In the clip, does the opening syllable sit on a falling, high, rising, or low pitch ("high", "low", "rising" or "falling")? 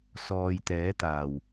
low